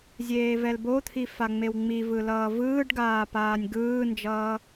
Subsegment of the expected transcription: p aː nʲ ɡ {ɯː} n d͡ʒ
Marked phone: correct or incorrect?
correct